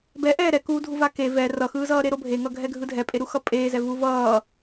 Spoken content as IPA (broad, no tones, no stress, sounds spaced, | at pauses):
b ɛ ʔ ɛː ɾ ɛ k uː dʱ u v a k e v ɛ r ʌ x ɯː z ʌː ɾ e ɾ o bʱ e ŋ ʌ ɡʱ ɛ ɡʱ ɯ dʱ ɛ pʼ e ɾ u x ʌ pʼ eː z ɛ v u v ʌː